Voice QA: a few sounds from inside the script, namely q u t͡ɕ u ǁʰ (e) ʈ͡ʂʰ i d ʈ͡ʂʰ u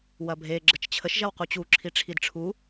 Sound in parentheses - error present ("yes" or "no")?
yes